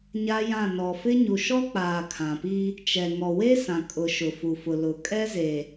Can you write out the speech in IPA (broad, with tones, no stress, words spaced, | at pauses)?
ɲa˦jã˦˨ nɔ˨fɪ˦ ɲu˨ʃɔ˦k͡paː˨ kʰã˨pi˦ | t͡ʃɛ˨ ŋɔ˨we˦sã˨ kʼʊ˨ ʃʊ˨fu˨fʊ˨ lʊ˨ kʼɛ˦ze˨